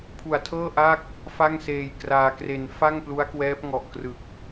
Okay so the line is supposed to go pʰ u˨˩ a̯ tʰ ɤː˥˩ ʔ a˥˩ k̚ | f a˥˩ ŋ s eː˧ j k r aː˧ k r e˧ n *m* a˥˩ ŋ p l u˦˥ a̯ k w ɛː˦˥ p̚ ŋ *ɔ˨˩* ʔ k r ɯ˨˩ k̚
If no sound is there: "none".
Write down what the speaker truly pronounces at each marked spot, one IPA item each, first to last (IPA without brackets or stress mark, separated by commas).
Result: f, ɔ˨˩